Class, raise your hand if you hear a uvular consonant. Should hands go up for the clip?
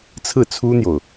no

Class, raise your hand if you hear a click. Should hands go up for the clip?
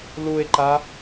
yes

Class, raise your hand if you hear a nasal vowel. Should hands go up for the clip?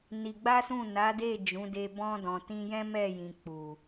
yes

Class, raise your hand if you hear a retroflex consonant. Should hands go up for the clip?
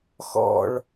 yes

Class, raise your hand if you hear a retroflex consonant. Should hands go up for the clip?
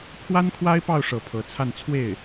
yes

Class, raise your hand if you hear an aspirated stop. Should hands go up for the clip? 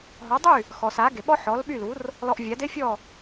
no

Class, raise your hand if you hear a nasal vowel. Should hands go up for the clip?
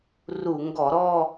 no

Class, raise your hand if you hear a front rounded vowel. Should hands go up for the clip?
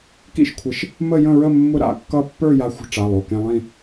no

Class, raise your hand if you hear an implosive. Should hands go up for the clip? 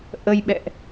yes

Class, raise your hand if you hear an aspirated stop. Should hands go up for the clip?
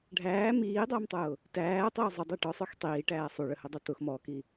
no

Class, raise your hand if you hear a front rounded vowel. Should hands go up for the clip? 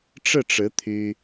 yes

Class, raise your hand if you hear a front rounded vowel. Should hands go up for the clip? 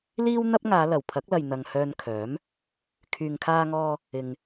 yes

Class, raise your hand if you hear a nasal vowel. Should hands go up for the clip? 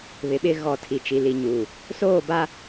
no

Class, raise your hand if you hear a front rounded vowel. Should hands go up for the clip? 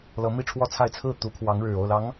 no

